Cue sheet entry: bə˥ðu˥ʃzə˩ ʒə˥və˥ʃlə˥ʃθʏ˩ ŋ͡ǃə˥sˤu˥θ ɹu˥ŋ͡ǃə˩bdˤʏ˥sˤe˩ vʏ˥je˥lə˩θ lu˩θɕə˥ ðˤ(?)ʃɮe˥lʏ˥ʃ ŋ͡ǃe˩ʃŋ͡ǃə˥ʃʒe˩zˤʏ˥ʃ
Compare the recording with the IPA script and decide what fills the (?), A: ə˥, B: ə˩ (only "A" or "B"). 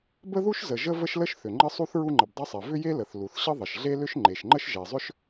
B